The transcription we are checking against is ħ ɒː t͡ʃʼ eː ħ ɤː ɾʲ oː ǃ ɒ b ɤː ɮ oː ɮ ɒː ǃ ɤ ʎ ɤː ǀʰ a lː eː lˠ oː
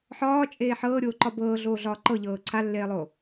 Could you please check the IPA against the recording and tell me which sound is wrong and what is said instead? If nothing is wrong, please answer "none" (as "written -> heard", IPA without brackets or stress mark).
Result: none